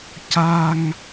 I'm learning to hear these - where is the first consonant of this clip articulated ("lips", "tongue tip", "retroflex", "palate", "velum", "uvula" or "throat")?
palate